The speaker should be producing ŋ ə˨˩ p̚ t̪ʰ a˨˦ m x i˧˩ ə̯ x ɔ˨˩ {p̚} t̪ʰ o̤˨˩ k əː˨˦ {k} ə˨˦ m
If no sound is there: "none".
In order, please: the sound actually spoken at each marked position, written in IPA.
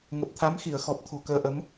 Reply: p̚, ʔ

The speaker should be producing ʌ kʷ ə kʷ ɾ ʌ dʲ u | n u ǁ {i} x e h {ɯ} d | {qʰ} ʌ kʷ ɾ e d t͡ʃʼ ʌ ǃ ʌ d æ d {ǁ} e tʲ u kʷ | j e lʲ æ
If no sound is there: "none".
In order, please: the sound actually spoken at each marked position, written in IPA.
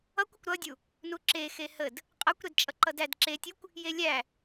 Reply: e, ə, qʼ, ǁ

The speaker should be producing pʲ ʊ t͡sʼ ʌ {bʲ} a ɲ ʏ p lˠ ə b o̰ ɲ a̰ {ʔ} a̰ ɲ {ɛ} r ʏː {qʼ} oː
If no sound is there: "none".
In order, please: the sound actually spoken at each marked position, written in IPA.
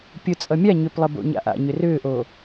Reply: mʲ, ʔ, ʏ, ʔ

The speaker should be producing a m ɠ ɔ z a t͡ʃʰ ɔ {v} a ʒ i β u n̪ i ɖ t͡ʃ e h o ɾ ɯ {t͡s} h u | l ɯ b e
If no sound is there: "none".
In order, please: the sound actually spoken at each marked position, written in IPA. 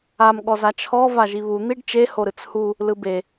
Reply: v, t͡s

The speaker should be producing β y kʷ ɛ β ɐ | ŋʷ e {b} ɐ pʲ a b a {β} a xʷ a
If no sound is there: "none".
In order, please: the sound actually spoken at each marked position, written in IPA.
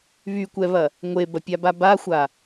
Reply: b, b

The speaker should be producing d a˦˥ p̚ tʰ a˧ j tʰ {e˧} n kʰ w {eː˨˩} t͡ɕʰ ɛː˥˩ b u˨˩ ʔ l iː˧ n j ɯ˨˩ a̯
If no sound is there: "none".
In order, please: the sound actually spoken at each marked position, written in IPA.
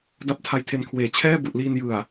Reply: e˧, eː˨˩

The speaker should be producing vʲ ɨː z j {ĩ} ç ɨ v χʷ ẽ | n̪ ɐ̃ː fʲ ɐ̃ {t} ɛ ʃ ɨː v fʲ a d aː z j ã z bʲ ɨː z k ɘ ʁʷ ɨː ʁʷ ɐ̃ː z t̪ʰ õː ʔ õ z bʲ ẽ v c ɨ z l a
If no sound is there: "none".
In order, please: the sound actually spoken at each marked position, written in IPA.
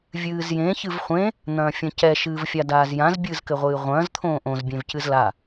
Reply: ẽ, c

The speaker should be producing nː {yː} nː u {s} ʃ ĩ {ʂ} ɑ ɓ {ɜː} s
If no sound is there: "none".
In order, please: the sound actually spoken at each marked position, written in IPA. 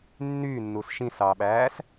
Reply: yː, s, s, æː

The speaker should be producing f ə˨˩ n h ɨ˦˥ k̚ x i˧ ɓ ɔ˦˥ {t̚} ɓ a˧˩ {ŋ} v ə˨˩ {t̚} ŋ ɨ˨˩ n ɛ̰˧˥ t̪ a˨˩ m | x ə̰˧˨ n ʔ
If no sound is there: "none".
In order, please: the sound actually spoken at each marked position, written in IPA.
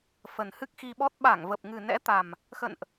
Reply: t̚, ŋ, p̚

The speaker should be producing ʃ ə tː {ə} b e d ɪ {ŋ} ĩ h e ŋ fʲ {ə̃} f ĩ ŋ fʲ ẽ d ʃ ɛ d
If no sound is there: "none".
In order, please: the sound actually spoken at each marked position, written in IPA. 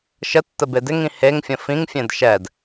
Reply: ə, ŋ, ə̃

